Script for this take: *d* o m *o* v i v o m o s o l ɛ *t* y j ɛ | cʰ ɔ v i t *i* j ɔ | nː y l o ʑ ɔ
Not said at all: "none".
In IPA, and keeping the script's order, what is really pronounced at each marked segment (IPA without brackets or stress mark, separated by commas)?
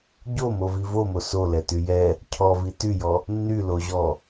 ɟ, o, t, y